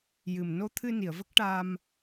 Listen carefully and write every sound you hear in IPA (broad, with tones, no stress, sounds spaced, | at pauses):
j ɨ˨˩ m n o˧ t̪ʰ ɨ˧ n i˨˩˨ ə̯ v ə˦˥ k̚ ʈ a˧ m